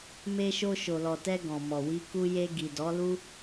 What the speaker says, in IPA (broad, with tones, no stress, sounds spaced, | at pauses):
m e˧ ʃ o˧ ʃ o˨ l ɔ˨ t ɛ˧ ɡ ɔ̃˨ m ɔ˨ w i˧ k u˧ j e˧ ɡ i˨ d ɔ˨˦ l u˦